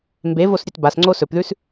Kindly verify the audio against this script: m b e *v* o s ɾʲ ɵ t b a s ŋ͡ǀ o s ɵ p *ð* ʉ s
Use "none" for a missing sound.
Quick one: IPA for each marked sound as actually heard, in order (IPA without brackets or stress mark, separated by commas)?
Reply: v, ð